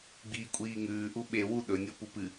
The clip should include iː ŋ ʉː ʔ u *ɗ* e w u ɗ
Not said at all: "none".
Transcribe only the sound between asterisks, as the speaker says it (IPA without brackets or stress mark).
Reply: ɓ